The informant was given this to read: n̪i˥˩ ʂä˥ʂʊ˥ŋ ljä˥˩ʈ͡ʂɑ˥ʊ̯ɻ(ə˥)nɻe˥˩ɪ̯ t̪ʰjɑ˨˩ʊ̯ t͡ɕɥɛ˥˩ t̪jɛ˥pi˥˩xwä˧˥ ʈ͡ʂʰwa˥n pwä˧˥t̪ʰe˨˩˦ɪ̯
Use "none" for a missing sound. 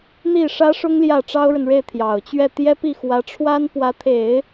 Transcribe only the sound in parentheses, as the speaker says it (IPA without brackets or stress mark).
ə˨